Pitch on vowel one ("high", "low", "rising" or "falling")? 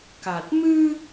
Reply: low